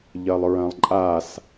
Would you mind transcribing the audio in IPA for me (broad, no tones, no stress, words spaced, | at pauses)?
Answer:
ʎɐlˠɹɐ̃lˠǃʼas